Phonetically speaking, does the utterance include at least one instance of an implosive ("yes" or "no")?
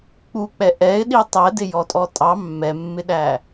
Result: yes